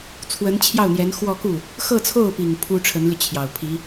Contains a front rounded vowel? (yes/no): yes